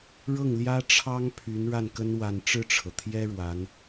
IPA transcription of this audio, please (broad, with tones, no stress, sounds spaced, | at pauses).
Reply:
ɻ ɤ˥˩ ŋ l j ä˥ ʈ͡ʂʰ ɑ˥ ŋ pʰ y˧˥ n ɻ a˥˩ n k ə˥ n w a˥˧ n ʈ͡ʂ ɻ̩˥˩ ʈ͡ʂʰ ɤ˩ t̪ʰ j ɛ˥ ɻ w a˧˥ n